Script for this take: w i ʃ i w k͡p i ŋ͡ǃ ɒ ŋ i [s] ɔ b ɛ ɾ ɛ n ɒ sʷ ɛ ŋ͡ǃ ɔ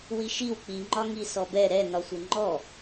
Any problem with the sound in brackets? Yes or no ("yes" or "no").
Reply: no